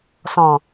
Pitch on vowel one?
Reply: low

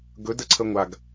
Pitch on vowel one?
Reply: rising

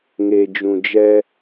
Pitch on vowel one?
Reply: low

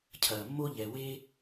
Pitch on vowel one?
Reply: low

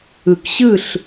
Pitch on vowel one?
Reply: low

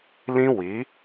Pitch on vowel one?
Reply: high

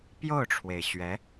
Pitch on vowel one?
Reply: falling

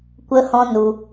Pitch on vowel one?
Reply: high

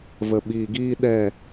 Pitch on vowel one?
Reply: low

